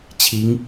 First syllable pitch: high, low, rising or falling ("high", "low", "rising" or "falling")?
rising